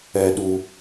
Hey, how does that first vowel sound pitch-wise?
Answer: low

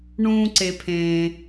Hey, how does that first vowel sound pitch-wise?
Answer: high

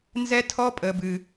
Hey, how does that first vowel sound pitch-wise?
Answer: high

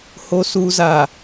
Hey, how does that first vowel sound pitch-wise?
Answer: low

